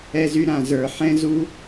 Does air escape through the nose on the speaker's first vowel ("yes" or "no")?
no